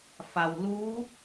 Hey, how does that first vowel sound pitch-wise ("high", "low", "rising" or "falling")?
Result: low